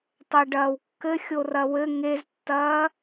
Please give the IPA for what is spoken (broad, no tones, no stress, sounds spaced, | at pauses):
tˤ ɛ ɖ ɐː w kː ɘ xʲ o r ɐ w ɘ ŋ e z tː ɐː